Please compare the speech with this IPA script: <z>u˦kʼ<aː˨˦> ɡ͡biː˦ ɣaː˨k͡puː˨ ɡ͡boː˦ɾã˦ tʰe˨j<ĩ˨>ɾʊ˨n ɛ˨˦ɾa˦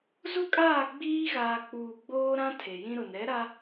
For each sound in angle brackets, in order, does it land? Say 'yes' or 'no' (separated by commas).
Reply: yes, no, no